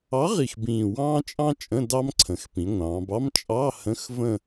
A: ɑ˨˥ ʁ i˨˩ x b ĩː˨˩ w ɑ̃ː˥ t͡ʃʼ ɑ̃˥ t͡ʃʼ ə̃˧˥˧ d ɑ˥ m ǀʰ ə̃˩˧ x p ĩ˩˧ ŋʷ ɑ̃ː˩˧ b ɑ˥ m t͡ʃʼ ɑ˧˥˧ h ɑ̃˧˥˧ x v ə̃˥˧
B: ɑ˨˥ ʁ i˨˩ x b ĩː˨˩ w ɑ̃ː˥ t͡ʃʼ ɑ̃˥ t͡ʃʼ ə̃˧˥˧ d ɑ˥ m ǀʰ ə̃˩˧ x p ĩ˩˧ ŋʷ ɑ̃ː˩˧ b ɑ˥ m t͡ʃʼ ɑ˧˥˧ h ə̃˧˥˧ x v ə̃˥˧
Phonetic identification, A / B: B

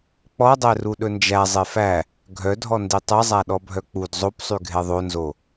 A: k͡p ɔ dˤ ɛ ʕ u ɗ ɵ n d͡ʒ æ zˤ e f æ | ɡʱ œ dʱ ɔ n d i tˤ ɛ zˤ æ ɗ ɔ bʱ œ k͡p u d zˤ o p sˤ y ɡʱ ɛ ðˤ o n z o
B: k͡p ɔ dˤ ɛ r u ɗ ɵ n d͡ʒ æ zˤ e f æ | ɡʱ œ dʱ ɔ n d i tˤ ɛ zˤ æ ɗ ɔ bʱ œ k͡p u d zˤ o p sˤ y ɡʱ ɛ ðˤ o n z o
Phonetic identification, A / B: B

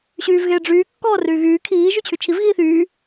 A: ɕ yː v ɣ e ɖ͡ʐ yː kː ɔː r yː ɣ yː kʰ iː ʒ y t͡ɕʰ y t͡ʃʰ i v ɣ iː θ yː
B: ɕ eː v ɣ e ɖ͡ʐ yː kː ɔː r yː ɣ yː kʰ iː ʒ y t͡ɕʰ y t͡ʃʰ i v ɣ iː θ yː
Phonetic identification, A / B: A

